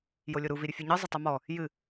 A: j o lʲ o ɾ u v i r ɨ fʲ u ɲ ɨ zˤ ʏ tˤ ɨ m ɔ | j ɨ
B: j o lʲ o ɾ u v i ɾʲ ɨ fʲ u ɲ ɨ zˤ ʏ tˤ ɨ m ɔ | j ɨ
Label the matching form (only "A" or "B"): B